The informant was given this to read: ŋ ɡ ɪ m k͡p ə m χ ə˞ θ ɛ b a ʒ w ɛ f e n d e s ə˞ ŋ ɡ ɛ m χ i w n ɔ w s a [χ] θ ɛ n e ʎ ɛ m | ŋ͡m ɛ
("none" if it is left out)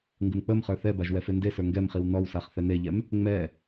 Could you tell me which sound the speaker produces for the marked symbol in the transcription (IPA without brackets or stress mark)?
χ